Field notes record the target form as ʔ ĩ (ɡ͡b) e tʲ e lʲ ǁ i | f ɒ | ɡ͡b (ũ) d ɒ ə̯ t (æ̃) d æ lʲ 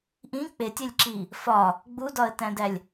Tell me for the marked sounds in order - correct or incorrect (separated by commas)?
incorrect, incorrect, correct